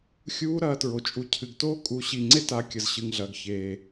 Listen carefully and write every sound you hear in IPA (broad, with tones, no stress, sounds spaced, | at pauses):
xʲ uː˦˥ ɾ ɐː˨˦ t ɹ o˨ t͡ʃʼ u˨ cʰ ɨ˨ ɡ t oː˦˥ kʼ u˨˦ ɕ i˨ ŋ͡ǀ e˦˥ t a˨˦ kʲ ɐ˨ z ɕ ɨ˨ ŋ ɮ ɐː˨ ɡ ç eː˨